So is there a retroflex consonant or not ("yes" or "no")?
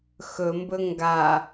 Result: no